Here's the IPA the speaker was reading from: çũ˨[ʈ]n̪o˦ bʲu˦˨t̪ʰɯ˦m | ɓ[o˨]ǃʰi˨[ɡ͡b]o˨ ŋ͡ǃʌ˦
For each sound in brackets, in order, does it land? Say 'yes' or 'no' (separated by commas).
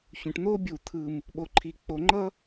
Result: yes, yes, no